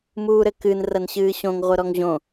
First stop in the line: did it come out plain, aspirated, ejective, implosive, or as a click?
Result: plain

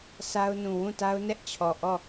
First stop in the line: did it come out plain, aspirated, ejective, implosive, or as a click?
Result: plain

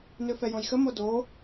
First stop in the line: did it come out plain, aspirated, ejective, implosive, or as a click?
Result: plain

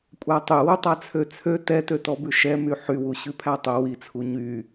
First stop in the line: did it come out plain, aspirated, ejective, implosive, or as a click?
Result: ejective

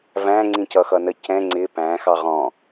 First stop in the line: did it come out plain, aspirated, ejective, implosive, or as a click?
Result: click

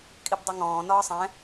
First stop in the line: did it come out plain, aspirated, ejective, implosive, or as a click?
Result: ejective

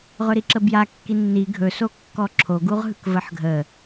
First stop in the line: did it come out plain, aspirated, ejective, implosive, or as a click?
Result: click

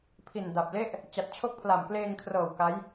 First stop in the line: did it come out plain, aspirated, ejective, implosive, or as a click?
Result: aspirated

